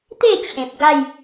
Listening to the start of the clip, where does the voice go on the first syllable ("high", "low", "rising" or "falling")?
falling